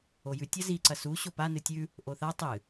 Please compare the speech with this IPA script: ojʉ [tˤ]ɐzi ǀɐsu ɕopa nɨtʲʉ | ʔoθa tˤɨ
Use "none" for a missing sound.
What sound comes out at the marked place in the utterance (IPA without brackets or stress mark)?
tʲ